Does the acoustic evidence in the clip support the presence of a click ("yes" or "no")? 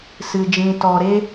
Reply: no